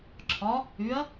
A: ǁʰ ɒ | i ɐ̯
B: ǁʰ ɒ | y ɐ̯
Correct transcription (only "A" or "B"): B